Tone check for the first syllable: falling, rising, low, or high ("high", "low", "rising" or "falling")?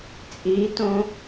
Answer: rising